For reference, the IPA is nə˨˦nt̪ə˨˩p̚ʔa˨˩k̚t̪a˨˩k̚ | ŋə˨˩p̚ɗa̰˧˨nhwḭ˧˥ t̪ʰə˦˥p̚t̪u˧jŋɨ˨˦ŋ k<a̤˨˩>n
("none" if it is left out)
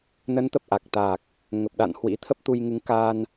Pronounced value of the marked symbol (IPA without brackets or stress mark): a˧